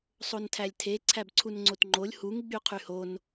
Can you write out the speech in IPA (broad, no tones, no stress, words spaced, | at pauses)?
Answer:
sˤontʰælʲtʰe ǀʰæbǀʰunŋ͡ǀotŋ͡ǃolʲ huŋ ɡ͡byqʰyhon